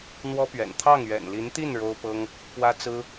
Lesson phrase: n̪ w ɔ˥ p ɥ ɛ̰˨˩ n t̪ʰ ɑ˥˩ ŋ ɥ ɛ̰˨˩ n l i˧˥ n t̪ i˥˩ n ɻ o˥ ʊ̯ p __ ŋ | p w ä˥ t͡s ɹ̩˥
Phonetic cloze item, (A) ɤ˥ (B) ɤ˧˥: A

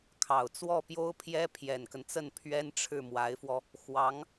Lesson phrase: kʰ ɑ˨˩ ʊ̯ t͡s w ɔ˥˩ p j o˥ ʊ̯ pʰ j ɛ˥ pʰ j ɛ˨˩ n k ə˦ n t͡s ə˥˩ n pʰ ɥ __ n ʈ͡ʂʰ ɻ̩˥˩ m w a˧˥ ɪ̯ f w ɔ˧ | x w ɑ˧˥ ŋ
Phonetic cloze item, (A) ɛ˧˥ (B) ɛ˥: B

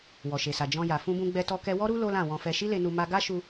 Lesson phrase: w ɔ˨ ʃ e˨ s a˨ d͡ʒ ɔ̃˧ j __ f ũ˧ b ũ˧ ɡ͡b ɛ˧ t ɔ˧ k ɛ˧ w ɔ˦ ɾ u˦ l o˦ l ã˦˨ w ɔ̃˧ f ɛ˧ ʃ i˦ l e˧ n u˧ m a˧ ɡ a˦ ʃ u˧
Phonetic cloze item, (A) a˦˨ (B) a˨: B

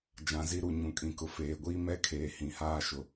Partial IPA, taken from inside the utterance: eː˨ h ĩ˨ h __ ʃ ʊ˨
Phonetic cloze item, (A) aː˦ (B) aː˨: A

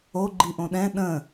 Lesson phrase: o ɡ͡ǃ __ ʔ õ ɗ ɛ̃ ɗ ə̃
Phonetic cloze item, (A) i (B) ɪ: A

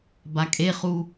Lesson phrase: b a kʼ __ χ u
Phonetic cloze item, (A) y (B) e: B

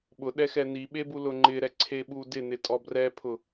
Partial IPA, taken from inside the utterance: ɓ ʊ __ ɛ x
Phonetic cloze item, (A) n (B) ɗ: B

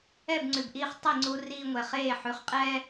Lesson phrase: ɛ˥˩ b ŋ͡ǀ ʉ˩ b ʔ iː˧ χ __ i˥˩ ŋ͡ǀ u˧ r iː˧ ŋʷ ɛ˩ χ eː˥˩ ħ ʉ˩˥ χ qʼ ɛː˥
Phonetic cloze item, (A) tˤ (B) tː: A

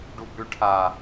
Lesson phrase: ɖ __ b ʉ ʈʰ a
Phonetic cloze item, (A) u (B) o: A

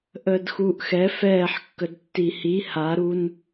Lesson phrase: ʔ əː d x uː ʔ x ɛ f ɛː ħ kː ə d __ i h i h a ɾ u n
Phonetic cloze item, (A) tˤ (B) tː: B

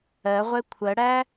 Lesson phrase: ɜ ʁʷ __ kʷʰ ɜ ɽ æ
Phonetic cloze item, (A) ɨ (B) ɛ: B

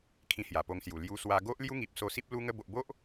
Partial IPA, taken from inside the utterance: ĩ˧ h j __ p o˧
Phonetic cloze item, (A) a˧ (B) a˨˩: B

